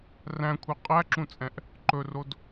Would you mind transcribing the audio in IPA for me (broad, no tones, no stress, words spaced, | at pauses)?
ræ̃kʷʰe qʼæǁũt͡sʼɛ̃ʔ | ǃɵrod